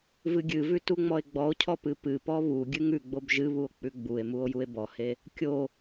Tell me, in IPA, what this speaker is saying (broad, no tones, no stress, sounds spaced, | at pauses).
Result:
v ɨ ɡʲ ɨ v ʉ t u ŋ͡m ɔ e̯ ɡ͡b ɔ o̯ cʰ ɔ p ɨ p ɨ p ɔ β u ɡʲ ɨ ŋ ʉ ɡ͡b o b ʒ ɨ β u o̯ k͡p ʉ ɡ͡b u e̯ m u o̯ j u e̯ b ɔ h e | kʲ o